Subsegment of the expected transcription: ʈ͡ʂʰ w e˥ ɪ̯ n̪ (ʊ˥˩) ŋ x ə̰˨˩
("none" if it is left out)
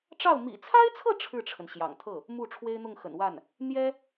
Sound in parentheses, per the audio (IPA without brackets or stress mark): ʊ˥˩